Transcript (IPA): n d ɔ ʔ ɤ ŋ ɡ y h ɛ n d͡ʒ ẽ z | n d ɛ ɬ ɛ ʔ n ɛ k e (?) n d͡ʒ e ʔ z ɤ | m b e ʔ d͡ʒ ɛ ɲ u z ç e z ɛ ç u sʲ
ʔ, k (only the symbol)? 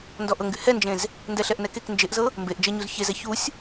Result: k